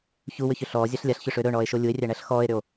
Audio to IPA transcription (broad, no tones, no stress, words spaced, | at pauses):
çuwʏçʏ ɬɔːzʲaɬ lʲaɬçʏʂʏː ɾɵɳɔːe̯ʃo lʲue̯rʲæɳæɬ xɔːe̯ɾʏo̯